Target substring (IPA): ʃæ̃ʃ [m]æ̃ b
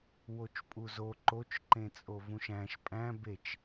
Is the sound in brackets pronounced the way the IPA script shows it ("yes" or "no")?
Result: no